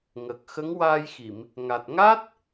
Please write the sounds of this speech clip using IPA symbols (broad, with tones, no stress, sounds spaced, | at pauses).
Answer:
ŋ ə˨˩ k̚ x ə˧˥ ŋ w aː˧ j x i˨˩˨ m | ŋ a˨˩ t̚ ŋ a˦˥ t̚